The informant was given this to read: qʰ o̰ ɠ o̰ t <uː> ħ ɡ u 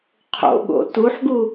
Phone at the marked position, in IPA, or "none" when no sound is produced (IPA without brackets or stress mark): u